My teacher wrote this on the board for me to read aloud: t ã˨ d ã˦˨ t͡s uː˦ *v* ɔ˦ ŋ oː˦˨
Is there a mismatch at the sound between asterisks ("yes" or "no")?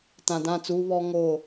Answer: yes